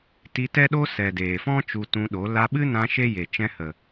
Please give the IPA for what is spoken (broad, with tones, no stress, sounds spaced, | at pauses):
t i˧ t ɛ˦ ɗ o˦ s ɛ˨ d eː˨ f ɔ̃˦ t͡ʃ u˧ t ũ˧ ɗ o˨˦ l a˧ ɓ ɨ˦ n ã˧ ʃ e˦ j e˨ t͡ʃ ɛ̃˧ h ə˨